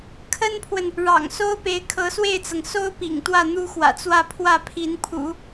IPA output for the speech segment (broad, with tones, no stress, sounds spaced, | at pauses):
kʰ ə˥ n pʰ w ə˨ n | ɻ ɑ̰˨˩ ŋ s o˥ ʊ̯ p e˧˥ ɪ̯ kʰ ɤ˧˥ s w e˥˩ ɪ̯ t͡s ɤ˩ ŋ s o˥ ʊ̯ p ḭ˨˩ ŋ t̪ w ä˥˩ n̪ u˥ x w ä̰˨˩ t͡s w ä˥˧ pʰ w ä˥˩ pʰ i˧˥ n pʰ ṵ˨˩˦